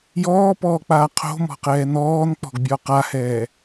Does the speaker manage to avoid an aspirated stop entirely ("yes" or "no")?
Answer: no